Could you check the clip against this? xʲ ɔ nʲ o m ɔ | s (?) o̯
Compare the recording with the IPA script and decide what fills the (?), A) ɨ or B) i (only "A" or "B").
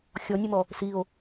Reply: B